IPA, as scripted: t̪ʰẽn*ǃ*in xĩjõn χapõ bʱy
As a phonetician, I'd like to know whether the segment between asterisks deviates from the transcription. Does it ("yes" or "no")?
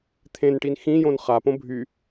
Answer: yes